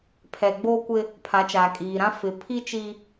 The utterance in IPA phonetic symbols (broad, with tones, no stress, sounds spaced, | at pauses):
pʰ ɛ˨ ɡ͡b oː˦ kʷ ɪ˦ | pʰ a˨˦ t͡ʃ aː˨ kʼ iː˨ ɾ ã˦ f ɪ˨˦ pʰ i˦ t͡ʃ i˦